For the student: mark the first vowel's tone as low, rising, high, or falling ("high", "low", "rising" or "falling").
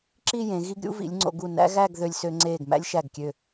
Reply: falling